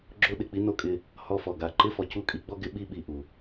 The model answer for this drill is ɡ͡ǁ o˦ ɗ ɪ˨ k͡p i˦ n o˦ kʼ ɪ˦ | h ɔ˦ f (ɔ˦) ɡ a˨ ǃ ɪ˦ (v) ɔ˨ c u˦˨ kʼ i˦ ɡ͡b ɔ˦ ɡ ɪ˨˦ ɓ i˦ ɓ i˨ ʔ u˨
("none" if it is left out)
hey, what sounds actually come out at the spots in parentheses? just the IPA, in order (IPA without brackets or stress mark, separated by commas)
ɔ˨, f